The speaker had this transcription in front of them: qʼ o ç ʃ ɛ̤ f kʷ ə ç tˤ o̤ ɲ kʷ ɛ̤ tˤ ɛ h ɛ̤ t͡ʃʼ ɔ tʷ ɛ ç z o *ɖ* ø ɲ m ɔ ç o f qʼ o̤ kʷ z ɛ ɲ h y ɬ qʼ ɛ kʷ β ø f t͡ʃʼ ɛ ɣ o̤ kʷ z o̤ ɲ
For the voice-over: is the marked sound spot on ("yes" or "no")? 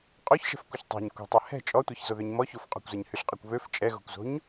no